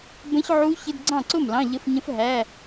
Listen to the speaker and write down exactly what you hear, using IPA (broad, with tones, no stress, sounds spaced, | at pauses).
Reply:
b ə̃˦˥ ç ʕ u˦˥ ç ɪ˧˥˧ d ɡ͡ǀ ɑ̃˥˩ ǀ ʊ˥˩ m l ɑ̃˧˥˧ ʎ ə˧˥˧ f ɲ ə̃˦˥ f ɦ æ˧˥˧